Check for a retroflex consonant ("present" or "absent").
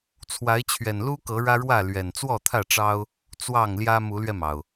present